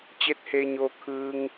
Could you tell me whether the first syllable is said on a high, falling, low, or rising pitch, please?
rising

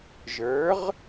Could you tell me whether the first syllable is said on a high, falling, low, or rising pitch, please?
rising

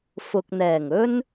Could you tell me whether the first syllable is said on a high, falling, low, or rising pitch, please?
low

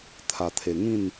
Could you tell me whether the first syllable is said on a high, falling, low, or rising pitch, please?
low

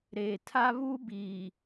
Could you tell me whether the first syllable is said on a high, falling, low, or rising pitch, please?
low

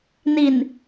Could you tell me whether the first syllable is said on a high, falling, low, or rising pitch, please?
low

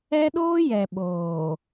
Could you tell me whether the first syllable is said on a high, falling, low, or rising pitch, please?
high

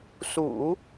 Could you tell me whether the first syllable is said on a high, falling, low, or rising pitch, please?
low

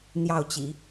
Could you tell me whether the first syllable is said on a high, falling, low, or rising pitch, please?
falling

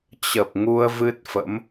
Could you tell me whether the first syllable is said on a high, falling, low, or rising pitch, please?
low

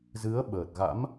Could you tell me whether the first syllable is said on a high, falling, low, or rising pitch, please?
rising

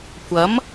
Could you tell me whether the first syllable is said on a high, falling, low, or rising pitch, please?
rising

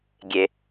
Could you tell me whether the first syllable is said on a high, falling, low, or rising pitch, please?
low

